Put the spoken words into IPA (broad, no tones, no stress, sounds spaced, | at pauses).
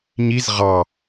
ɲ i z ʁ ɑ